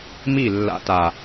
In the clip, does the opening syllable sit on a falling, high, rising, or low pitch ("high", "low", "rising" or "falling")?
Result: falling